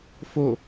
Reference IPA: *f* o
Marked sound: correct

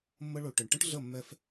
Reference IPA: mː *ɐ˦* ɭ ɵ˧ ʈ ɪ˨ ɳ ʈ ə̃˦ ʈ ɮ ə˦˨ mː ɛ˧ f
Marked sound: incorrect: ə˦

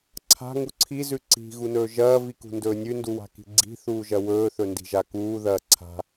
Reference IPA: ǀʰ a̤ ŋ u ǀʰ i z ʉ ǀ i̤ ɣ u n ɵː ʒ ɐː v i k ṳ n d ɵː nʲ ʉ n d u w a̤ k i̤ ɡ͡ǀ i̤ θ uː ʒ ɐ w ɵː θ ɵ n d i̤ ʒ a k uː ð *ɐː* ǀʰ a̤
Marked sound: correct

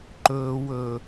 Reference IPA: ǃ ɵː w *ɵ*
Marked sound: correct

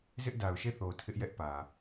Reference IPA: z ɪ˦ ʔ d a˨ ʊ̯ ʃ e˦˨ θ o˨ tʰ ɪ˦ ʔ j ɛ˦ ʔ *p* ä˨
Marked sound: correct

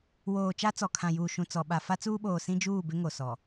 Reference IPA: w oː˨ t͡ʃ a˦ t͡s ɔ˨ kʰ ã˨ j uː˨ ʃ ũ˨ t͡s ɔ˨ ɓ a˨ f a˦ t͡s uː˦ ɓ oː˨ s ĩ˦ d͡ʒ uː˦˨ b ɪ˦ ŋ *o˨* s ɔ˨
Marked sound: correct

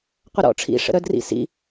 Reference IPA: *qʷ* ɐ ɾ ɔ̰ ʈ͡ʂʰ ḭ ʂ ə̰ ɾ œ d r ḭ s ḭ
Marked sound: correct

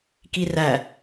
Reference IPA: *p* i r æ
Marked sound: incorrect: k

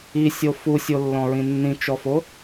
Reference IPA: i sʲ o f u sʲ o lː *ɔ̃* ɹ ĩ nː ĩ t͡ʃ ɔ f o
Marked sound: correct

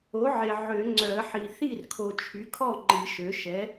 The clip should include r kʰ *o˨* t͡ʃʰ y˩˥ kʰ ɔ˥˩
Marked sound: correct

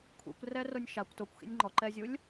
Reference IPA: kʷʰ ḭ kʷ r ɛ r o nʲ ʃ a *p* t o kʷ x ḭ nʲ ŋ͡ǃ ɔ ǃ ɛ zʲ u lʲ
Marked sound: incorrect: kʷ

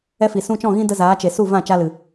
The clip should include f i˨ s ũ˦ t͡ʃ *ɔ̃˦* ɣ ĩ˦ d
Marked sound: incorrect: ɔ̃˦˨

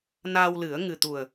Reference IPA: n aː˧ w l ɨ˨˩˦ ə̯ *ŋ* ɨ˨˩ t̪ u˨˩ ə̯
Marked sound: correct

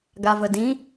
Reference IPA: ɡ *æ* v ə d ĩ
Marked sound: incorrect: a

